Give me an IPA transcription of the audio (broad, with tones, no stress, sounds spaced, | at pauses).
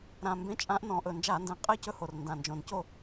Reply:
ɾ ã˨˩ m b ẽ˨˦ t͡ʃʼ ã˨˦ ʔ n ɔ̃˨˩ ʔ ɵ˨˩ n d͡ʒ a˧˩˧ n d ɛ̃˨˩ qʼ ɛ˥˨ c ɵ˥˨ h o˨˩ r n d ã˨˩ n d͡ʒ õ˨˩ n c o˥˨